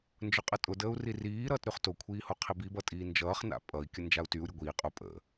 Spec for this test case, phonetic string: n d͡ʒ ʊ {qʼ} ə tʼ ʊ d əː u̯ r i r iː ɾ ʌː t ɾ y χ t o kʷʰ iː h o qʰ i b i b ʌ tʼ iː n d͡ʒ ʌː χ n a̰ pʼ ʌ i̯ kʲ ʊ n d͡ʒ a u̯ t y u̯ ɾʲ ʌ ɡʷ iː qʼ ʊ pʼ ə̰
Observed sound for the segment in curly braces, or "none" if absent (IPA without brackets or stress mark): qʼ